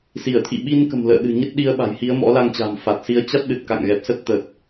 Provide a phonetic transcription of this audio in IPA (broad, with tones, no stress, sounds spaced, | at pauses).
s i˧˩ ə̯ t̪ʰ ḭ˧˨ ɓ i˧ n k ə̤˨˩ m l ə̰ː˧˨ ɗ ɨ̤˨˩ ɲ ə˦˥ t̚ ɗ i˨˦ ə̯ ɓ a̤˨˩ j h i˨˦ ə̯ m ɔ̰˧˥ l a˧ ŋ t͡ɕ a̤ː˨˩ m f a˨˩ t̚ s i˨˦ ə̯ t͡ɕ a˦˥ t̚ ɗ ɨ˨˩ t̚ k a̰˧˨ ŋ ɣ ɛ˨˩ p̚ s ə˦˥ t̚ t̪ ə˨˩ t̚